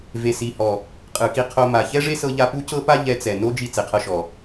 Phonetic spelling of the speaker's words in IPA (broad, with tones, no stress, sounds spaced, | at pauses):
v e˨ s i˨ h ɔ˨ | qʼ ɯ˨ k i˧ qʰ o˧ m a˨ ç ɛ˦ ʐ e˦ s ɤ˧ ʎ a˧ p u˦ c ɤ˦ p a˦ ʎ ɛ˧ t͡s ɛ˨ n o˦ d͡ʒ i˧ t͡s e˨ qʰ ɤ˧ ʃ ɔ˨